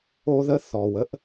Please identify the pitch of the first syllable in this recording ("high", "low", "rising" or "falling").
high